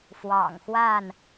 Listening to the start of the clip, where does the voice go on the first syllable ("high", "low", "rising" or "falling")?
low